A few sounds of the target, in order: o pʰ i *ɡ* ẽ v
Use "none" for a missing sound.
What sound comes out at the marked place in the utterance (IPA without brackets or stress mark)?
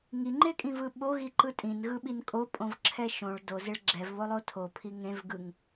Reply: ŋ